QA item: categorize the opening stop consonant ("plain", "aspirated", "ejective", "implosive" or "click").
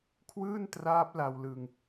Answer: aspirated